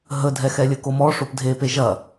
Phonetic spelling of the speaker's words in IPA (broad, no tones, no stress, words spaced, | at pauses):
ɦədʱɛ xɛlʲɘkomɔ ʂopdʱepe ʒɐ